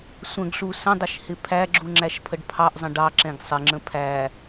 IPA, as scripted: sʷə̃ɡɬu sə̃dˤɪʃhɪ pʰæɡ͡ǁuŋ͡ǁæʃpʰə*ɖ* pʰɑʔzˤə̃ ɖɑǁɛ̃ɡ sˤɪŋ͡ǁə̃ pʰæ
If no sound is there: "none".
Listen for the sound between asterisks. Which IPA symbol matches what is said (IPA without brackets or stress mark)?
ɖ